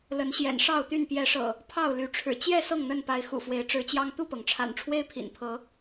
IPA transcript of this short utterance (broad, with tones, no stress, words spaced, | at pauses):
lə˨˦nɕjɛ̰˨˩nʂɑ˥˨ʊ̯t̪y˥˨n pjɛ˨˦ʂɤ̰˨˩ | pʰɑ˥˨ʊ̯ly˨˦ʈ͡ʂʰɻ̩˨˩ t͡ɕjɛ˥˨ sɤ˥˨ŋn̪ə˥˨npa˨˦ɪ̯ xṵ˨˩fwe˨˦ɪ̯ʈ͡ʂɻ̩˨˦t͡ɕjɑ˦ŋ t̪u˥˨pɤ˩ŋʈ͡ʂʰa̰˨˩nʈ͡ʂʰwe˦ɪ̯ pʰḭ˨˩npʰɤ˨˦